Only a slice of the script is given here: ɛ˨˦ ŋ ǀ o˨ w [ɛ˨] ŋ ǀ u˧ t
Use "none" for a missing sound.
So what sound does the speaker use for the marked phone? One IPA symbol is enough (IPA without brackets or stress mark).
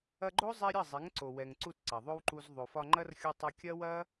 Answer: ɛ˨